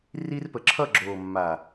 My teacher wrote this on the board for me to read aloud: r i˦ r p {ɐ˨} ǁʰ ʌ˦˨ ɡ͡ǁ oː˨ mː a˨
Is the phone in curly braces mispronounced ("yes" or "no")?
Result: yes